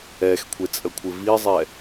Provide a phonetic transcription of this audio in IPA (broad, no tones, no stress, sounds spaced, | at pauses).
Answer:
ɛ x kʷʰ e t͡sʼ ə kʷʰ ɪ v i zˤ ɛ